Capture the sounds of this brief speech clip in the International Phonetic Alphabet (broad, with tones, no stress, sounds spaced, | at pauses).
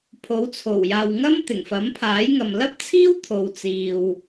pʰ o˨˥ w t͡sʰ o˨˩ w j aː˨ w ŋ ɐ˥ m t̪ ɪ˨˩ ŋ f ɐ˨˥ m pʰ aː˨˥ j ŋ ɐ˨ m l ɐ˥ p̚ t͡sʰ iː˥ w t̪ʰ o˨ w t͡s iː˨ w